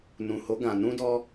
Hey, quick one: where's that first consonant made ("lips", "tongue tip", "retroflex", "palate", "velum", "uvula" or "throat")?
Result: tongue tip